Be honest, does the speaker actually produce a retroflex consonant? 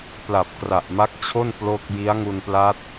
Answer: no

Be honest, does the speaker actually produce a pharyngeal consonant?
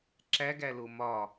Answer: no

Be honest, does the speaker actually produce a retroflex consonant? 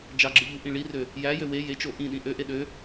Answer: yes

